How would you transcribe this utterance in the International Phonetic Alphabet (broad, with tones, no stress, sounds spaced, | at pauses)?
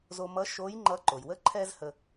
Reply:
z o˧ m ʌ˧˥ ʃ o˧˥ j ŋ͡ǃ ʌ˧˥ ǃ o˩ j w ə˥ ǃʰ ɛ˥ z h ə˧